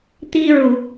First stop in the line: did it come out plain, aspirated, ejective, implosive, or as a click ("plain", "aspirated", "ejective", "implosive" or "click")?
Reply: plain